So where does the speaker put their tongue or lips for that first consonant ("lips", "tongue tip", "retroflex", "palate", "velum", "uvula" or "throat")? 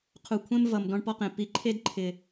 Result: uvula